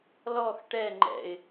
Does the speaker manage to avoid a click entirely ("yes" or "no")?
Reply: no